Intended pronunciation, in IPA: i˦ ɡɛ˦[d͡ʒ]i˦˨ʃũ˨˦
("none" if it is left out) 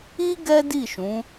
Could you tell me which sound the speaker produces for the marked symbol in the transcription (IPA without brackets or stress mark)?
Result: d